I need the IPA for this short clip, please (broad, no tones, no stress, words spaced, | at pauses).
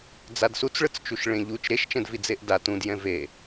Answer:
d͡zadsut͡sɭɯt͡st͡ʃuʃ ɭẽʎut͡ʃ ɾeʃt͡ʃɛ̃dvi d͡zeʔda tũdjɛ̃ ve